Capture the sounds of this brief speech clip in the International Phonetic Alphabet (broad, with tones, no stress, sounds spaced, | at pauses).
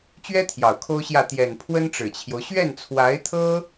t͡ɕ ɥ ɛ˥ t̪ʰ j ɑ˨˩ ʊ̯ kʰ o˥ ʊ̯ ɕ j ä˥˩ t̪ j ɛ˨˩ n pʰ w ə˥ n ʈ͡ʂ ɻ̩˨˩ t͡ɕʰ j o˦ ʊ̯ ɕ ɥ ɛ˥˩ n t͡sʰ w a˧˥ ɪ̯ t̪ʰ ɤ˥